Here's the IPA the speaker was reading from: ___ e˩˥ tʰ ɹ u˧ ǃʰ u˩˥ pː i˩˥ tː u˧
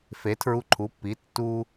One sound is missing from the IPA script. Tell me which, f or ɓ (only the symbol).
f